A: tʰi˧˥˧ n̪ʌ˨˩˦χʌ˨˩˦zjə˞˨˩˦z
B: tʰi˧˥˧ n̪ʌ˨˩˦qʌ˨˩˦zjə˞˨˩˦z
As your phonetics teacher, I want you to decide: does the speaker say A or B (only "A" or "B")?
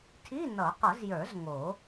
B